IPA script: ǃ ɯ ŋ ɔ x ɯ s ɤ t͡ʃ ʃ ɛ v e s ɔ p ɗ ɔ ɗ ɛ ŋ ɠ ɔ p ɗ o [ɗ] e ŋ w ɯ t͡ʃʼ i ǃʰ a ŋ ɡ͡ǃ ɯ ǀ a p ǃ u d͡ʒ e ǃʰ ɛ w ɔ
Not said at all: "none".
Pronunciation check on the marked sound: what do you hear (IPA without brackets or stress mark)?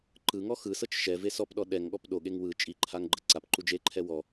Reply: ɠ